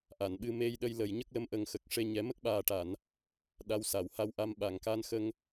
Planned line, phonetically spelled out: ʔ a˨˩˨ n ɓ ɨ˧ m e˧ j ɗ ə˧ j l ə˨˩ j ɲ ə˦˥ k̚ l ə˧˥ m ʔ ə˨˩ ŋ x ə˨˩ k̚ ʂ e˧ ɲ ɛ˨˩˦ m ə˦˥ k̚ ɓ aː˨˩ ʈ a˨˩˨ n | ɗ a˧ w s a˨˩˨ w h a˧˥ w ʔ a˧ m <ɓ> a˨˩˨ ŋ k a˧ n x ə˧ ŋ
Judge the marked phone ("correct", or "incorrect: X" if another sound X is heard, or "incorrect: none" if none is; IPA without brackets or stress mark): correct